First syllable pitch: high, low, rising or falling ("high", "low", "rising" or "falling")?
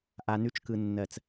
low